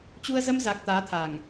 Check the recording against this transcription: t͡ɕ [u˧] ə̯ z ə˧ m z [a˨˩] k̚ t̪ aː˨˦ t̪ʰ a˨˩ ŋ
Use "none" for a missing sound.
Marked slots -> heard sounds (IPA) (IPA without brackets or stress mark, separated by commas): u˧, a˨˩